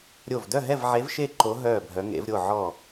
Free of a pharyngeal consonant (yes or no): no